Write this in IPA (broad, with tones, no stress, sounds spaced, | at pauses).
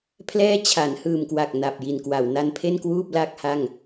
pʰ l ɛː˥˩ t͡ɕʰ a˩˦ n h ɯː˨˩ m k w a˨˩ k̚ n a˨˩ p̚ j i˨˩ n k w a˩˦ w n a˧ n pʰ e˥˩ n k w uː˥˩ p̚ l a˥˩ k̚ h a˥˩ ŋ